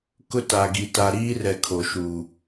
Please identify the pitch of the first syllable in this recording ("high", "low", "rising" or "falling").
high